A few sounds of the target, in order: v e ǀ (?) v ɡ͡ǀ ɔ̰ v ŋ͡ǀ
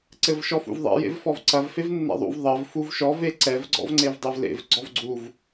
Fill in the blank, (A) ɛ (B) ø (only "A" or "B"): A